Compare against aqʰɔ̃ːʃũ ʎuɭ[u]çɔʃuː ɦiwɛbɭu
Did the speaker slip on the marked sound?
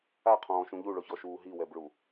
yes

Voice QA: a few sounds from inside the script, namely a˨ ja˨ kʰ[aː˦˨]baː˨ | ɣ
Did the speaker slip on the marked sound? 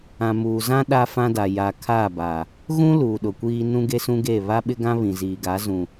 no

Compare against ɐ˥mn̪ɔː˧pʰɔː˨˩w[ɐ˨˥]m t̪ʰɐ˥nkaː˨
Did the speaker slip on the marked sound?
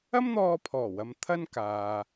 yes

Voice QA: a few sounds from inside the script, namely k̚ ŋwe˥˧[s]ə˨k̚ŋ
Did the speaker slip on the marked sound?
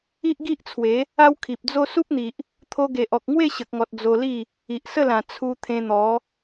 yes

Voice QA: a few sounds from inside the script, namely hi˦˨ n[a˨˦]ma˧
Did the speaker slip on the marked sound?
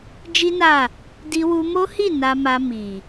yes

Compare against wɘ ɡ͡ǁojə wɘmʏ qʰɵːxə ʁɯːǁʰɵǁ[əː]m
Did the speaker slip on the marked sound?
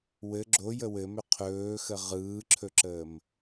no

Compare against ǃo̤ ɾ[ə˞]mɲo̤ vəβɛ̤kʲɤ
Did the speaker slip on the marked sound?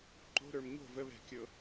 no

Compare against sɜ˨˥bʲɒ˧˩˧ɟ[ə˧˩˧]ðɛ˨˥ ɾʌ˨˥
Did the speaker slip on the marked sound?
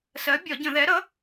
yes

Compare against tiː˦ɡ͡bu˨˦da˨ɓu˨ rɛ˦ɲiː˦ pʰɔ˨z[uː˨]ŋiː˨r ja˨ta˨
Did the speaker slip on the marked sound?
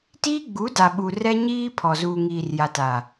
no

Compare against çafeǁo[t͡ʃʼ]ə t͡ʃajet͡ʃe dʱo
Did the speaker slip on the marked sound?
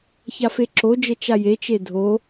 yes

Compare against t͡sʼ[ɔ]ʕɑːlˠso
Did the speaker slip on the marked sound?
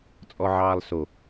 no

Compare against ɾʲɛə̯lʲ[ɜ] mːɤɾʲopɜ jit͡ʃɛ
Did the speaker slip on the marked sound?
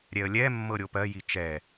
yes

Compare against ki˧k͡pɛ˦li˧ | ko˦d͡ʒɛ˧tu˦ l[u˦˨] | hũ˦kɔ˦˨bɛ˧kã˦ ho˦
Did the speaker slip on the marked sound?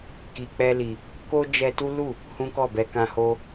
no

